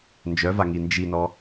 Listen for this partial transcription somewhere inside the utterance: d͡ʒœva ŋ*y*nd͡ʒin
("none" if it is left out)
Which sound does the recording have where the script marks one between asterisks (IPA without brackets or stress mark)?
i